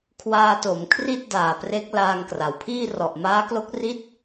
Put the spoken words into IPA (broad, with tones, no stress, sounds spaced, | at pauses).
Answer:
kʰ w aː˧ t o˩˦ m kʰ r i˥˩ t̚ d aː˨˩ p r e˦˥ k̚ l aː˧ ŋ k r a˩˦ w pʰ iː˥˩ r ɔ˨˩ ʔ m aː˦˥ k l o˦˥ k̚ r i˥˩ t̚